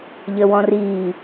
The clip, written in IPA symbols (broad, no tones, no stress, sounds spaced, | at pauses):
ʎ ə w ɔ̃ r i